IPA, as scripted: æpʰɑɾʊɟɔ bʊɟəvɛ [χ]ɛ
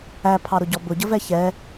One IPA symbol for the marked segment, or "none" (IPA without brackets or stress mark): ç